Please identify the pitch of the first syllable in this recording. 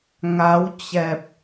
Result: rising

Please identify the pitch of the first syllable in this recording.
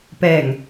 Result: low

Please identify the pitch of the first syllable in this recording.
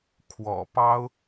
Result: low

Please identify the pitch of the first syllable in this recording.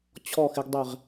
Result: falling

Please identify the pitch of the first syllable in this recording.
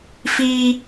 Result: high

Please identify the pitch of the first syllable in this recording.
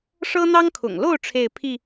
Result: high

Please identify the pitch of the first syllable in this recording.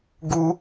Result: high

